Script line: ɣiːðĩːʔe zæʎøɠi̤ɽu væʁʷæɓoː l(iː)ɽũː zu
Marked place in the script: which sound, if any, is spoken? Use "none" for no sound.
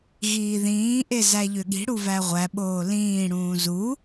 ĩː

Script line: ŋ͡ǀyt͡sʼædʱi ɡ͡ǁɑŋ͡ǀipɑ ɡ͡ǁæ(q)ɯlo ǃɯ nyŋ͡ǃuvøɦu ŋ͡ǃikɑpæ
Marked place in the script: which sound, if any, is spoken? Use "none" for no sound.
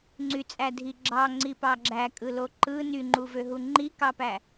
kʼ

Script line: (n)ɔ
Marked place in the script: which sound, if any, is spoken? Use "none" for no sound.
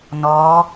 n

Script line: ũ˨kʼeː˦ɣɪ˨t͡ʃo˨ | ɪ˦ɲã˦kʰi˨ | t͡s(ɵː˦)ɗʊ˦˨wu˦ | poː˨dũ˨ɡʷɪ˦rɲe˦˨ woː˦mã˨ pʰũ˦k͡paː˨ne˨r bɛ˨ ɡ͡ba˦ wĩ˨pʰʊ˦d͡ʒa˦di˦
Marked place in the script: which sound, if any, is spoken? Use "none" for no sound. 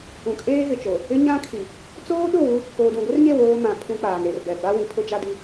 oː˦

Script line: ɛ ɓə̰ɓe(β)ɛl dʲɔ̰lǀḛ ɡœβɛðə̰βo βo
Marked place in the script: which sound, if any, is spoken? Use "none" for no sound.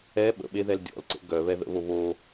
ð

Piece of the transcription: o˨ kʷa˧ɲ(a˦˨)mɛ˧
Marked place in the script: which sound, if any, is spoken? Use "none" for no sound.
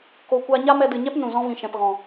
a˦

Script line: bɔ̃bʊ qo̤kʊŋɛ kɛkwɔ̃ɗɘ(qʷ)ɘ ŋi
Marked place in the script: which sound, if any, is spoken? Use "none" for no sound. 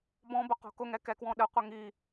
qʷ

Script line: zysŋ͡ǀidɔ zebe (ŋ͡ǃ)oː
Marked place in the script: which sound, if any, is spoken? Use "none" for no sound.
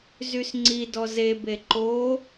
ǃ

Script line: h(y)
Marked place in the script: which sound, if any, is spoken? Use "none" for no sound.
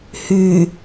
y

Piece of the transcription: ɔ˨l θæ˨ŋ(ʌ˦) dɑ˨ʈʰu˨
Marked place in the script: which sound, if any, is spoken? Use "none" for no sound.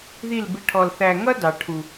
ʌ˦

